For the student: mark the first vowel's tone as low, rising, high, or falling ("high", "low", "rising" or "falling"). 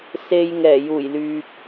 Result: low